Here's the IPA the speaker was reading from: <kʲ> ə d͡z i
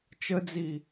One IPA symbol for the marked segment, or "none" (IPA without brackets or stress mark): t͡ʃ